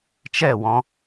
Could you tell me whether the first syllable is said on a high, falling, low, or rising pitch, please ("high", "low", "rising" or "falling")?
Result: falling